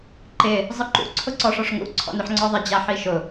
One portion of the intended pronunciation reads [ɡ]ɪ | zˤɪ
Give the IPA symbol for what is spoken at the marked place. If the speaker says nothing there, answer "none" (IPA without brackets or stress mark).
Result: ǃ